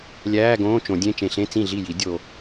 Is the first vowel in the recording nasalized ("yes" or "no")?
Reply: no